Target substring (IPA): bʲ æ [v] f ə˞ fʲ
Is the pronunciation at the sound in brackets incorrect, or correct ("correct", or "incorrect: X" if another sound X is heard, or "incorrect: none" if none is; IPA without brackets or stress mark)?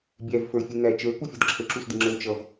correct